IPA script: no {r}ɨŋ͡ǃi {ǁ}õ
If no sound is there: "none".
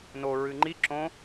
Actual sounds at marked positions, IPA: ɹ, ǁ

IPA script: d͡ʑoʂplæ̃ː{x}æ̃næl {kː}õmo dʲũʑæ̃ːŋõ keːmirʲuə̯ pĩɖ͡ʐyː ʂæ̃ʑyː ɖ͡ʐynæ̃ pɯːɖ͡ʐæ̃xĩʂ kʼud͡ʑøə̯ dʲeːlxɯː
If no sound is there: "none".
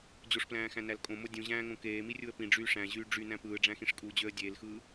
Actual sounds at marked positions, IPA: x, kʼ

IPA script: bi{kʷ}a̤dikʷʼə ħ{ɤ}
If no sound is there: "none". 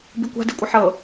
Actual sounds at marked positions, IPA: kʷ, ɤ

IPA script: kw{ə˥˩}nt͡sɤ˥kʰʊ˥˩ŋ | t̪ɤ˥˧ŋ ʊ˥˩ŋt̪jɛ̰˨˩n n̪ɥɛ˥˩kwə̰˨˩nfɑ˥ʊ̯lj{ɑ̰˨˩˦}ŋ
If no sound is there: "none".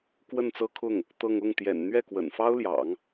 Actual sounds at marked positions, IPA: ə˥˩, ɑ̰˨˩˦

